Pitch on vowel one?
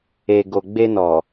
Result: low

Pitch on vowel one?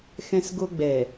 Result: high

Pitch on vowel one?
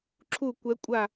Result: falling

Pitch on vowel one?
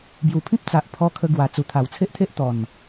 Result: low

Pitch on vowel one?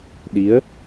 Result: rising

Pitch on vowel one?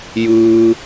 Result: low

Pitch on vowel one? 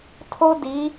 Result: high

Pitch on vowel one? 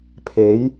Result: rising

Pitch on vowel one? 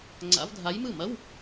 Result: rising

